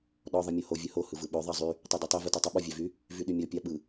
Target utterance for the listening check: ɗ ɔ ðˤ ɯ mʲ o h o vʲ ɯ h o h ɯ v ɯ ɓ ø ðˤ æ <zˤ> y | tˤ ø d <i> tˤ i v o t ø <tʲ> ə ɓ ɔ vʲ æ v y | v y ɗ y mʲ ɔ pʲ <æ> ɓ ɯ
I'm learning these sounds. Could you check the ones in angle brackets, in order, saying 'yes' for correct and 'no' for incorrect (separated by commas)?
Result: yes, no, no, no